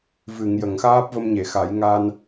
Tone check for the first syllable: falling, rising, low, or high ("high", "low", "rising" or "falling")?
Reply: low